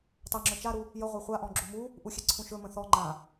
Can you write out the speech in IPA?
tˤɛŋ͡ǁɵ t͡ʃaɾu | jəʁʷa χʷaʔɔ̃ ɡ͡ǁumu | ʔuxʲɛǀʰũʃɵ mə̃θɔ ŋ͡ǃã

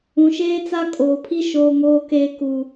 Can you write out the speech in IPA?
ũ˨ʃeː˦ t͡sa˦kʼoː˨pʰi˦ ʃoː˨ŋoː˨keː˨ ku˨

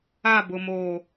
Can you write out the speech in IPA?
a˦˨bʊ˨ moː˨

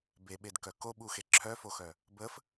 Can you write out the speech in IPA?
beɓed kœkoɓuxe ǁʰœfoxœ | bəf

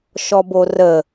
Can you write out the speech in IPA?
ʃɔborə

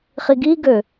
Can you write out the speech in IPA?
χiɡiɡø

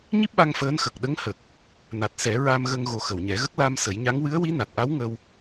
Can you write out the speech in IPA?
ɲi˦˥p̚ɓa˧ŋ fəː˧˥n xə˨˩k̚ɗə˧˥ŋhə˨˩k̚ | na˨˩t̚sɛ˨˩˦ ɹa˧mɣə˧ŋɣo˨˩ xə˨˩˨wɲɛ˨˩˦ɣə˦˥k̚ la˧m sə˨˩˦jɲa˧˥ŋ wɨ˧˥ə̯wi˧˥na˨˩t̚ʔa˧˥w ŋə˧w

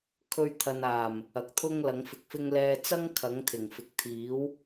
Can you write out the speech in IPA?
kʰɵ˧ɥt̪ʰɐ˨naː˨˩m | ɐ˨k̚t̪ʰʊ˥ŋ lɐ˨˥ŋfɪ˨˥k̚fɪ˥ŋ lɛː˧t͡sɐ˥ŋ kʰɐ˨˥ŋ t̪ʰɪ˨˩ŋ fɪ˨k̚t̪ʰiː˨˥w

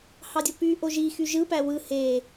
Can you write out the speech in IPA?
hɑdʲopy ʔoʒi xyʒɯ pæwɯ he

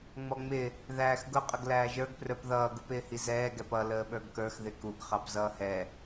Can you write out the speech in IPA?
ŋ͡mɔŋ͡mɪ | ðæːxɡʊ qʼəɡlæːʒə˞ɡ prə˞pðʌː ɡupɪːhizɛː ɡɛpʌ ləːɓə˞ɡkə˞x ðɪkuɡ χɑpzʌːhɛ

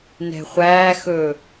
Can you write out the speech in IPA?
nɛ̤χʷæːxɵː

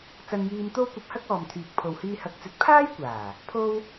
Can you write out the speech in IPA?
t͡sɐ˧njiː˧mt̪o˥w kʷɐ˧p̚hɐ˥k̚ɔː˨mt̪ʰyː˨k̚ pʰo˨whiː˧ hɐ˨˥k̚t͡sɵ˨˥t̚ pʰaː˥jkʷaː˨˩ | pʰo˥w

